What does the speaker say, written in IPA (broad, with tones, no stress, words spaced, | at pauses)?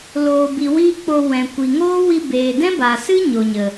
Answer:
loː˨bi˨ wiː˦k͡po˧ wɛ̃˨kʷi˨ŋoː˦ wi˧beː˨dɛ̃˦baː˨ sɨ˦ ɲo˨ɲə˨